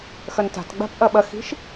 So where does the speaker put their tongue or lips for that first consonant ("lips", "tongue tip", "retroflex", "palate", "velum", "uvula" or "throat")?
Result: velum